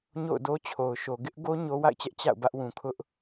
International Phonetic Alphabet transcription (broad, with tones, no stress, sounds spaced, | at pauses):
ɲ o̰˦˨ ʊ̯ d o˦ t͡ɕʰ o˨ ʊ̯ ʃ o˨ ɡ ɪ˦ ʔ ɡ o˦ ɲ o˦ w a̰˦˨ ɪ̯ t͡ɕ ɛ˦ ʔ t͡ɕ a̰˦˨ ʊ̯ b ä˦ ʔ w ũ˨ kʰ ʊ˦ ʔ